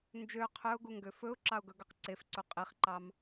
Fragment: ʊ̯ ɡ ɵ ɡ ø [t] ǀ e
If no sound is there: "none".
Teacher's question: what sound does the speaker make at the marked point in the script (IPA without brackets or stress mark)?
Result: q